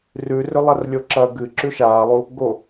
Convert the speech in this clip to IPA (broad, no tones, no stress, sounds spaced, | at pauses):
r ʉ r ɵ lˠ ɐ r lʲ o ǁ ɐ ɡ ɨ ǁ ʉ ʃ aː lˠ u | ɡ o